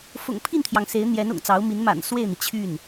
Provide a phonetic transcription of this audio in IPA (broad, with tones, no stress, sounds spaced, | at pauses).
f ʊ̰˨˩ ŋ pʰ i˥˩ n t̪ʰ j ɑ˩ ŋ s e˧˥ ɪ̯ n̪ j ɛ˧˥ n ʊ̰˨˩ ŋ t͡s ɑ˧˥ ʊ̯ m i˧˥ n m a̰˨˩ n s w e˥˩ ɪ̯ n̪ i˩ t͡ɕʰ y˥˩ n